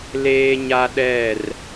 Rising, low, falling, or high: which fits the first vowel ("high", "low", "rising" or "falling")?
high